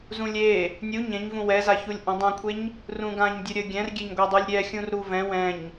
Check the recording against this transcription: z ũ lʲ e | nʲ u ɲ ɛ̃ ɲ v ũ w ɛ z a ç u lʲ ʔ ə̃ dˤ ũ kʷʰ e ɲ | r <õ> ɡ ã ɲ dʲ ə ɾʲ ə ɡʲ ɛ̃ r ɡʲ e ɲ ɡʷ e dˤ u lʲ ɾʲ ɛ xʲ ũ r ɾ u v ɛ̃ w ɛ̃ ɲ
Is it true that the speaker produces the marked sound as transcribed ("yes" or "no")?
no